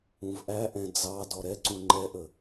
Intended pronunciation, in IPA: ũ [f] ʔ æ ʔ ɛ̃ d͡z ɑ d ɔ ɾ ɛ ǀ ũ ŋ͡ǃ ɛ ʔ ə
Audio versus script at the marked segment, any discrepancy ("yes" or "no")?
yes